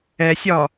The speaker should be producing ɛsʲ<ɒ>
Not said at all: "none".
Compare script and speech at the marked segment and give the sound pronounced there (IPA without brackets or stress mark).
ɒ